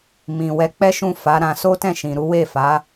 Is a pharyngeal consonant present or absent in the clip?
absent